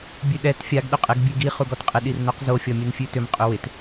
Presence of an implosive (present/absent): present